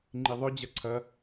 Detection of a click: present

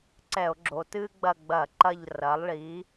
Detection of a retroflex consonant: present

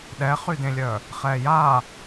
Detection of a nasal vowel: present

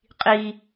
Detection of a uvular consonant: present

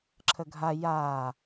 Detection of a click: present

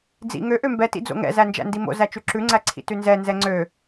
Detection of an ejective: absent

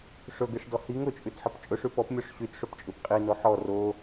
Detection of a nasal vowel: absent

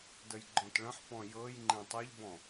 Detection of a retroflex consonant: present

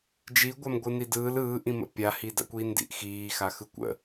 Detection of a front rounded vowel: absent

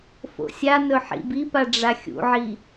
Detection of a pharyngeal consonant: present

